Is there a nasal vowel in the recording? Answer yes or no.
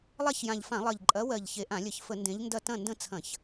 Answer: yes